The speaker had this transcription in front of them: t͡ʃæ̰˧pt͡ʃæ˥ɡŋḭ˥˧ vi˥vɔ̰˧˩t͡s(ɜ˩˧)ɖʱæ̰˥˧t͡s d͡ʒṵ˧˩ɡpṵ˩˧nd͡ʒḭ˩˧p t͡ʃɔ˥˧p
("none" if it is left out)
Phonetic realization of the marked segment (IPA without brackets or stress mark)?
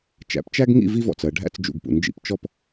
ɜ˩˧